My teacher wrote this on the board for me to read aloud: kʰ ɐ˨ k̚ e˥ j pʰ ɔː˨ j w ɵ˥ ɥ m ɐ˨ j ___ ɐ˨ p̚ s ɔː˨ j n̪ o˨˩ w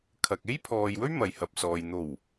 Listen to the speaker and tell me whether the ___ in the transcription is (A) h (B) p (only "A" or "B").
A